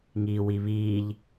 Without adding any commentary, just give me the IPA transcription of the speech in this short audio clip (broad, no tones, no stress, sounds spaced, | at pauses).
ŋ iː w i β iː ʎ